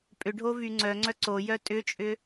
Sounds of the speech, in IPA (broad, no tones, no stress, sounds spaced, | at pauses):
pʼ ʏ ɖʱ o v y ŋ͡ǀ œ ŋ͡ǀ œ ǀ o j œ tʼ ʏ t͡ʃʼ ʏ